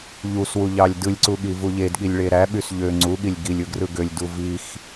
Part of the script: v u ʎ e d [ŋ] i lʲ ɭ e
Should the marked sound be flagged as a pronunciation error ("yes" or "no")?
yes